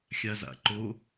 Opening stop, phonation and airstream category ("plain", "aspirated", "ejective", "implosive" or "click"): click